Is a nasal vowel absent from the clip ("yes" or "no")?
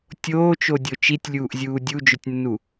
yes